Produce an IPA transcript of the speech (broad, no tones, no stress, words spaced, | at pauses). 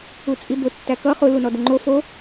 ut͡sʼid̪ʊ tːækʌ χʊ lunɔdʊŋ͡ǃo fo